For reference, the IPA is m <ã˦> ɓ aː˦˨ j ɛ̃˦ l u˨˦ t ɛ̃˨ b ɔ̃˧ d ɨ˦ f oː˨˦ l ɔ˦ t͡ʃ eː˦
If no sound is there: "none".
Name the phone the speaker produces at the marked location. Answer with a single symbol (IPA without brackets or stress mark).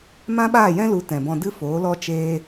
ã˦